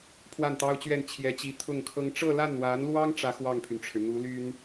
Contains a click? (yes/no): no